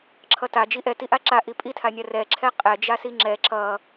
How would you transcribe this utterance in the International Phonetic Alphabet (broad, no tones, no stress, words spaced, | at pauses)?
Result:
ǁʰʌta d͡ʒiʔɛ tiʔaǁa ʔipʼitʰanʲa rɛǁʰɛ qʼɛd͡ʒasi ŋ͡ǁɛ ǁʌ